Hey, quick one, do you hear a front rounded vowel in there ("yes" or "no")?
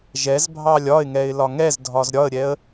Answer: no